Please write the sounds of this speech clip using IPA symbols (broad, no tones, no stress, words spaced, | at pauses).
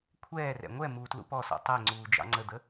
kʷʰɛːrɛ̰ ŋʷɛ muːtlṵpɔsɔ̰ tˤɛŋ͡ǀuː d͡ʒɑ̰ŋ͡ǀəd̪ə